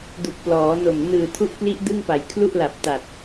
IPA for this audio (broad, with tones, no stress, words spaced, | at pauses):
du˨˩k̚plɔː˩˦no˨˩m nɯː˨˩tʰu˦˥ʔkli˦˥ʔ dɯ˥˩ŋpa˩˦j kʰlu˥˩ʔla˨˩p̚ta˨˩t̚